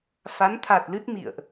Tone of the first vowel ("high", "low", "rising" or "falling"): rising